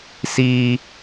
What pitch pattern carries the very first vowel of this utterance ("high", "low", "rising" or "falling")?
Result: high